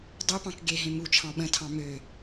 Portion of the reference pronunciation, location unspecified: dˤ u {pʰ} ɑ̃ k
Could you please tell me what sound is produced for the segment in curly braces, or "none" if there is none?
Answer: p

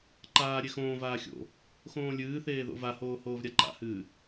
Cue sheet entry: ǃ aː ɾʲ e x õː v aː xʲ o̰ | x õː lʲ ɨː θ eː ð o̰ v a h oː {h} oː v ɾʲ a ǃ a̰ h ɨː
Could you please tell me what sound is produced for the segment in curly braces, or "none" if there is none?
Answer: h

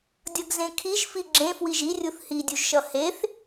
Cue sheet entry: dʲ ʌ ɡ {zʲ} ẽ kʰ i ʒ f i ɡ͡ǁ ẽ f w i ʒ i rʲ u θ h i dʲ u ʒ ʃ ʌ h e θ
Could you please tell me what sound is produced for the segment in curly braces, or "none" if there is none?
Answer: z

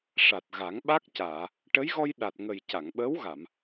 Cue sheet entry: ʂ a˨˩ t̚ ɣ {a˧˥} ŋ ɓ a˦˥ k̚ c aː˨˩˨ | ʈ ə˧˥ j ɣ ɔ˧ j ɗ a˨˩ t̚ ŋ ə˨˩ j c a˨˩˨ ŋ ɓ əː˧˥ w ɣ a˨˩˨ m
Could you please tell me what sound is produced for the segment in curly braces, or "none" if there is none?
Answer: a˨˩˦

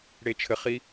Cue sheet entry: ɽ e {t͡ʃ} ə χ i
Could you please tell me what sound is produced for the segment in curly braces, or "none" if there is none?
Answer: t͡ʃʰ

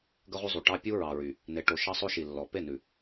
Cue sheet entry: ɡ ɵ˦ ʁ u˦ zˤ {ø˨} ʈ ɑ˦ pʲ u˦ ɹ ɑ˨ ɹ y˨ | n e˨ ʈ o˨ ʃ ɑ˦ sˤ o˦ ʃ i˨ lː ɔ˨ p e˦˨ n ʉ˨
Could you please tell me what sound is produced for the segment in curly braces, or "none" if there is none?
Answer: u˨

